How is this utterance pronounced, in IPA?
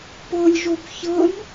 p ɤ lʲ ʒ o b ç ɤ n

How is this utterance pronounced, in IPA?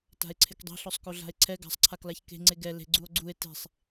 t a̤ e̯ ǀʰ ɪ k dˤ e̤ ɬ ɔ sˤ k o ɮ a̤ e̯ ǀʰ ɛ ɡ a̤ sˤ ǀʰ a k l a ç k e̤ ŋ͡ǀ e ɡ ɛ l e̤ ɡ͡ǀ u o̯ ɡ͡ǀ u e̯ t e̤ sˤ

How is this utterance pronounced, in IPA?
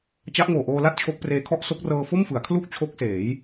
t͡ɕ a˦˥ ʔ ŋ oː˨˩ ʔ oː˧ l a˥˩ t̚ t͡ɕʰ o˦˥ k̚ p r eː˦˥ kʰ ɔ˥˩ ʔ s o˦˥ k̚ r ɤː˧ f o˥˩ m f ɯ˩˦ a̯ kʰ l u˥˩ k̚ t͡ɕʰ o˦˥ k̚ s eː˩˦ j

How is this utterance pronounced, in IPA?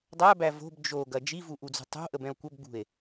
dˤ æ b æ v o̤ b d͡ʒ o ɡ ɐ d͡ʒ i v u ʔ u d͡z ṳ tˤ o̤ ʔ ə b ɛ̃ o̯ kʷ ɐ b ɡ͡b ṳ e̯

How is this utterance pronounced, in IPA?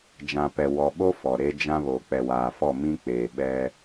d͡ʒ ã˨ p ɛ˨ w ɔ˨ ɓ o˦ f ɔ˨ ɾ e˦ d͡ʒ ã˦ β o˨ k͡p ɛ˨ w aː˨ f ɔ˦˨ m ĩ˦ k͡p eː˨ ɓ ɛ˦

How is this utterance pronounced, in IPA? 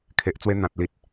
kʰ e˨ ʔ t͡s w e˧ n̪ ã˨ t̚ l i˨ t̚

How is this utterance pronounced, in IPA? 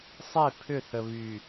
sˤ e˦˨ pʰ ʏ˦˨ θ ə˨ β y˨

